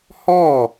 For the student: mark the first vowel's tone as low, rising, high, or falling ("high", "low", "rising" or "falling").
falling